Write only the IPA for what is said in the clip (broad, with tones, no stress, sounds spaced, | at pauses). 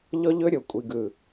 ʎ ɔ˦ ʎ ɵ˦ ɾʲ o˨ kʷʼ i˨ ɡ ɯ˨